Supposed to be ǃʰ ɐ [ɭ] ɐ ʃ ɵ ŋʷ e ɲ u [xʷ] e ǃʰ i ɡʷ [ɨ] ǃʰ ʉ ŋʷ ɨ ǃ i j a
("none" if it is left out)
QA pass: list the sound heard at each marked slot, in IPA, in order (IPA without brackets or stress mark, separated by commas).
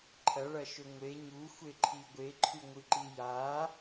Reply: ɭ, xʷ, e